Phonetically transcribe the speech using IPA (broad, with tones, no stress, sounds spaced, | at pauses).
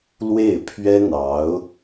l w e˥˩ ɪ̯ pʰ ɥ ɛ˥ n̪ ɑ˧˥ ʊ̯